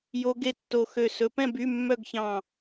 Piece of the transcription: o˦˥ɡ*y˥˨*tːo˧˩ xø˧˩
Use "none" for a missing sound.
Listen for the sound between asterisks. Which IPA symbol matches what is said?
e˥˨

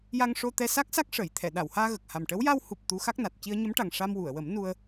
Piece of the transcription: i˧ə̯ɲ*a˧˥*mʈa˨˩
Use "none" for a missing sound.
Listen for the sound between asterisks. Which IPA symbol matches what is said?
ə˧˥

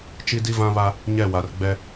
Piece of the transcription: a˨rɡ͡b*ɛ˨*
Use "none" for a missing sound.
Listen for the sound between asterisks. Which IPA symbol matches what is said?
ɛ˦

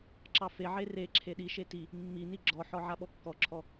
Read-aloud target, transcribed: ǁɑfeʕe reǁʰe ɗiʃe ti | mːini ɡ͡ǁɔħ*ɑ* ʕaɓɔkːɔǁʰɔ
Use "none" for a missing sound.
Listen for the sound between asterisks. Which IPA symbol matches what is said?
ɔ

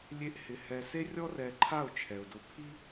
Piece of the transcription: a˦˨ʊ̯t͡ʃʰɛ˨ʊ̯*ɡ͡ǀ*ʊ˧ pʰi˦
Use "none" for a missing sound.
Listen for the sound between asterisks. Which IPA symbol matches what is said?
d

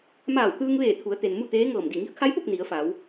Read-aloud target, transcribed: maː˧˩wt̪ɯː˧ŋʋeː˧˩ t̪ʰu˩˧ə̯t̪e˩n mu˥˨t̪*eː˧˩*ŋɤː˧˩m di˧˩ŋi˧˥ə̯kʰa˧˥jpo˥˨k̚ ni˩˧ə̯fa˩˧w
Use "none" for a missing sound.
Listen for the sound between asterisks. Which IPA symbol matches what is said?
eː˧˥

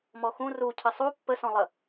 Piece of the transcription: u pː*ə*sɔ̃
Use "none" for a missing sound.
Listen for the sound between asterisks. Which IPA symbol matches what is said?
ə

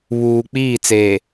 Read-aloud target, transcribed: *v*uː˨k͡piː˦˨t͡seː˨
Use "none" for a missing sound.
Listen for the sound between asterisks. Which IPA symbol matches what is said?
β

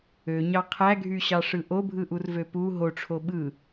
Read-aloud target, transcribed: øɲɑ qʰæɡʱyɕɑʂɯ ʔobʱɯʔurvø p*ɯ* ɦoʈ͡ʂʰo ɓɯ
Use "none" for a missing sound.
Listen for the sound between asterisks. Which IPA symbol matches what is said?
u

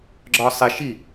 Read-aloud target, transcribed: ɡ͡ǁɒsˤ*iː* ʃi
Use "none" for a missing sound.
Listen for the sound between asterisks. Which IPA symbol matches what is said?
i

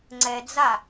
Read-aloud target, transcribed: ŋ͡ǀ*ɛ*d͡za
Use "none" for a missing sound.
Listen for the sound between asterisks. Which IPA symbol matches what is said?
ɛ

